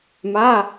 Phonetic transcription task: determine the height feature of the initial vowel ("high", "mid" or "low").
low